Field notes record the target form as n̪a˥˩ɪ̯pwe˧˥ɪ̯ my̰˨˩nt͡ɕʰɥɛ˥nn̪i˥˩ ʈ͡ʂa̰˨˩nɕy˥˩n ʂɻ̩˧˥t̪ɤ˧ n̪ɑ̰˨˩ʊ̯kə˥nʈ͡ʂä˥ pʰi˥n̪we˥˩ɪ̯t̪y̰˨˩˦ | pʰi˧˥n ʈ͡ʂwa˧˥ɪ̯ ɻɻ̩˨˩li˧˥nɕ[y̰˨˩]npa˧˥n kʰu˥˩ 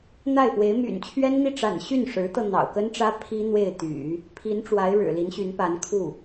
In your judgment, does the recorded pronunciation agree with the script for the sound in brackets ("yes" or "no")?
no